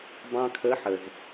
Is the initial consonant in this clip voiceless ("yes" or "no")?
no